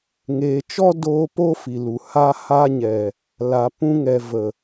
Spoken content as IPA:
ŋ eː˨ t͡ʃ ɔ˦ d oː˧ p o˦ f i˨ l u˨ h a˧ h a˧ ɲ ɛ˨ | l a˨ p ũ˧ ŋ ɛ˨ v ə˨

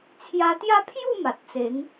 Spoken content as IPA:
t͡sʰ j a˧ t̪ j a˦ pʰ j u˥˧ m a˨ t̚ t͡s e˨˦ ŋ

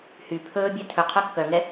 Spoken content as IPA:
h y pʰ ɵː bʲ œ tʰ ɵ qʰ œ kː œ ŋ ɛ

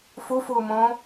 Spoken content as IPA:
f u f uː m õː

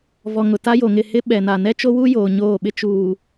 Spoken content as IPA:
v ɔ˨ ŋ ʊ˨ t a˦ j o˨ ŋ ɪ˦˨ h ɪ˦ ɓ ɛ˨ n a˨ n ɛ˦ t͡ʃ o˦ w u˦ j oː˨ ɲ oː˦˨ ɓ ɪ˦ t͡ʃ uː˨

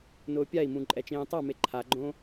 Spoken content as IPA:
n ʊː pʲ a i̯ m ũ ǃʼ ɛ t͡ʃ ẽː tˤ a m e ǃʰ a ɡ͡ǃ õ

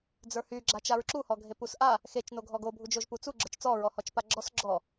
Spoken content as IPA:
d͡z ə˞ h y ɡ͡ǁ a t͡ʃ a ɹ ǁ u h ɔ ɡʱ e p u s ʔ a | x e t͡ʃ n o ɡʱ ɔ ɡ o bʱ u d͡ʒ o ʒ p u t͡s u ɡ͡ǁ ə˞ t͡ʃ t͡s ɔ ɹ ɔ h ɔ t͡ʃ p a ɡ͡ǁ ɔ s ɡ͡ǁ ɔ

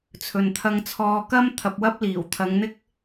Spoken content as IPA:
t͡sʰ ɵ˨ n t̪ʰ ɐ˧ ŋ t͡sʰ ɔː˧ k ɐ˥ m t̪ʰ ɐ˧ p̚ w ɐ˥ p̚ l iː˨˩ w t̪ʰ ɐ˨˧ ŋ n̪ ɪ˥ k̚

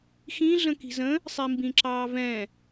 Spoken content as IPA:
x ĩ ɮ ə̃ k i̤ z ə̃ | sˤ i m b ĩ ǁ ɑː v ɛ̃

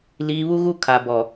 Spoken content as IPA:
l iː˨ β u˦ ɣ u˦ kʰ a˨ b ɔ˨

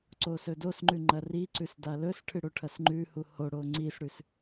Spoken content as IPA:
ǀ o s ɵ d o s ŋ͡ǃ ʉ ŋ͡ǃ ɐ r i ǀ ʉ s d a l ɵ s ʈʰ ɨ ɽ o ʈʰ ɐ s ŋ͡ǃ ʉ h u h o ɽ o ŋ͡ǀ i s ɽ ʉ s

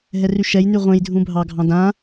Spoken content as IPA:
ɦ ɛ r y ʃ ɛ j n y ʁʷ ẽ j dʱ ũ bʱ ɑ ɡʱ ɑ̃ d ã

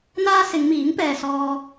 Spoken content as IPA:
n̪ aː˥ s ɪ˨˧ ŋ m iː˨˥ ŋ p ɛː˨ s ɔː˧

